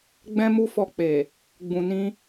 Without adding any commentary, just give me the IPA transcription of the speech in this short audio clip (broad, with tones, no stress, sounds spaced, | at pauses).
ɡ͡b ɛ̃˦ m u˦ f ɔ˧ k͡p e˨ | ɡ͡b ũ˨ n ĩ˧